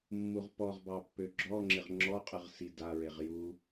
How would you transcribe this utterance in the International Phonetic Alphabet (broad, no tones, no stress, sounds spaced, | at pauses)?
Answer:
mː u ʁ p ɔ ʁ b ɑ pː ø ɡ͡ǁ ɔ ŋ͡ǁ ɪ ʁ ŋ͡ǁ ɔ qʼ ɯ ʁ s i d a ɹ e ʁ j u